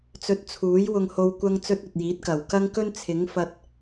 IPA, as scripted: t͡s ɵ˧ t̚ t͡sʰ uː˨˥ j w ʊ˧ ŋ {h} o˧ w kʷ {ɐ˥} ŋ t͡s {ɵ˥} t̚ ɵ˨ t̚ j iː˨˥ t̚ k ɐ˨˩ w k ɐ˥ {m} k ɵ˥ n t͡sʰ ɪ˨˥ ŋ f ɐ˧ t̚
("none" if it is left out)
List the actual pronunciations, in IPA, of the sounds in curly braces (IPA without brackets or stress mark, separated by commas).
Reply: h, ɐ˥, ɵ˥, ŋ